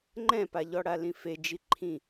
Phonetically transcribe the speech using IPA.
ŋ͡ǃɛ̃paʎɔɽa lĩfed͡ʒi ǃʰĩ

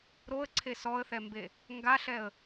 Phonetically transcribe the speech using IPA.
ɾoə̯ǀʰe sɔə̯θɛmbe | ŋɡaɬɛə̯

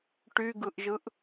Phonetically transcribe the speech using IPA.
ʈyɡɯʔʒɯʔ

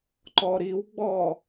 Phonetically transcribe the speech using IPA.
ǃɔɾiwɡ͡bɔ

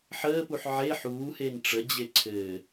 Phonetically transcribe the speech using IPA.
ħəːpuħ ʕe ħuːhen ʈ͡ʂəd͡ʑe ǀʰɘ

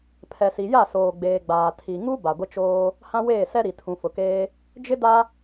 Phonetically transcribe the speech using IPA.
pʰɛ˨si˨ja˦˨soː˨ ɡ͡beː˨ɡ͡baː˨ tʰi˨ŋu˦ ba˨ɡʷɪ˦t͡ʃoː˦ | hã˦weː˦˨sɛ˦ ɾi˨tʰũ˨fʊ˨keː˦ | d͡ʒɪ˦da˦

